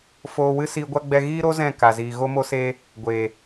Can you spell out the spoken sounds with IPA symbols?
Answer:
f oː˧ w ɨ˦ s iː˧ ɡʷ a˦ ɡ͡b ɛ˧ ɣ iː˦ ɾ o˦ z ɛ̃˦˨ k a˨ z iː˨ ɣ o˧ m o˧ s eː˧ | ɡʷ eː˨

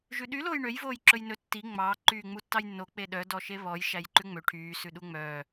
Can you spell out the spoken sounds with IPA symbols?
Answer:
ʒ ʉ ɗ y l oː j ɳ ø j v oː j ǁ ɵ j n ɵ tː i ŋ͡m ɑ ǃ yː ŋ͡m u tː ɑ j nː o k͡p e ɗ œ d ɔ ʃ e β ɔ j ʃ æ j ǃ ʉ ŋ͡m ø ʈʰ yː s ʉ ɗ u ŋ͡m œː

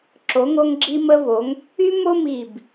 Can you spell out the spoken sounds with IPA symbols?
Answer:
ǁ o˩˧ ŋ o˧ ŋ ɡ͡ǁ i˧ m ə˧ v o˩˧ ŋ | y˥ m o˥ m i˧˩ b

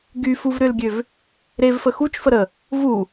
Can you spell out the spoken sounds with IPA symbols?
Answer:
ɡ y f u v ɾ ʏ l ɡʲ ø v | ɾ e v f ə x u t͡ʃ f ə ɾ ə | v u

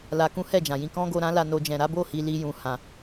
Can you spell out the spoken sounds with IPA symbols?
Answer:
l a˧ k ũ˦ h ɛ˦˨ d͡ʒ ã˨ j ĩ˧ k ɔ̃˦ ɡ o˧ ɾ ã˦ l a˧ n o˧ d͡ʒ ɛ̃˨ ɾ a˨˦ b o˦˨ h i˧ l i˧ j ũ˨ h ã˨

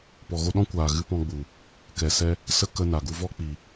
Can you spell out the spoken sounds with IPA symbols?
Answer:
p ɔ˨ ɣ o˧ ɗ ɔ̃˦ kʷ aː˨ ɣ ɨ˧ p ɔ̃˧ ɡ͡b u˨ | k ɛ˨ s ɛ˧ | s ə˦ k ə˧ n a˨ ɡ u˧ v ɔ˦ k͡p iː˨

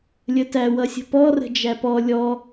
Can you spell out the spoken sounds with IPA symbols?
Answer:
lʲ ə t æ w ʌ sʲ ə̤ p ɔ r ə̤ d͡ʒ æ p ɔ lʲ ɔ

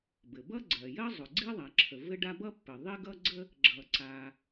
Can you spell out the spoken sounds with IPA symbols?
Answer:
b ɘ˩ b ʌ˥ ɡ͡ǀ ɜ˩ j ɜ˥ zˤ ʊ˩ ɡ͡ǀ i˥ ðˤ a˩ ǁʰ ə˩ v ɘ˥ ɖ a˥ b ʌ˥ pː ɘ˩ ðˤ i˥ ɡ ʌ˥ ɡ͡ǀ ə˥ | ɡ͡ǁ ʌ˩ ǀ a˩

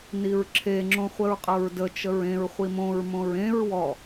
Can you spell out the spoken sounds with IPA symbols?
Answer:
n i ɹ ǁʰ e ŋ͡ǁ õ χʷ ə ɹ qʼ ɤ ɹ d ə t͡ʃ ə ɹ ẽ ɹ χʷ i m õ ɹ m õ ɹ ẽ ɹ w ɔ

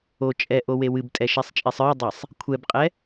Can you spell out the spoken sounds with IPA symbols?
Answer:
o t͡ʃʼ ɛ ʔ o w e w ɨ b tʼ ɛ ʃ ɛ sˤ t͡ʃʼ e sˤ ə˞ dˤ e sˤ | kʷʰ ɛ b qʼ ɛ

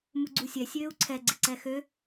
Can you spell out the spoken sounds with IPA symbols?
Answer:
m u ɡ͡ǀ u sʲ ɛ sʲ øː u̯ ǀʰ ɛ ɡ͡ǀ ɪ ǀ ɛ x ø

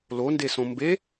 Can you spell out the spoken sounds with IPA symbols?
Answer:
l o n d e s õ m b e

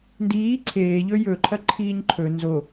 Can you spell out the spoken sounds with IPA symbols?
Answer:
n d iː ǀʰ eː ʎ ɵ j ɵ ǃʰ ɐ ǃʰ iː ɲ ǃʰ ɵ n z o

